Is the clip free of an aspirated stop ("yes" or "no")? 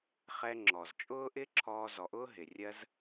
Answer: no